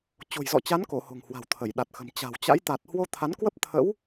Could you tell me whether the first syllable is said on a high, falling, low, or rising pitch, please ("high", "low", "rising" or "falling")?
low